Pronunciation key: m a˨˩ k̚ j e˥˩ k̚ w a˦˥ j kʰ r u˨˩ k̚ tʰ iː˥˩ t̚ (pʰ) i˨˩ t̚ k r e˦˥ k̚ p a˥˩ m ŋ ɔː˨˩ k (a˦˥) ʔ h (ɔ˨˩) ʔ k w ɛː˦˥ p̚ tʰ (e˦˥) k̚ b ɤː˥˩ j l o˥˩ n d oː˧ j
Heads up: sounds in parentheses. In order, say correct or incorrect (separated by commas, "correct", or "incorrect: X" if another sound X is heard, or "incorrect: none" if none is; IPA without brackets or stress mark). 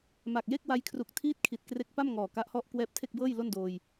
incorrect: kʰ, correct, incorrect: ɔ˥˩, incorrect: e˥˩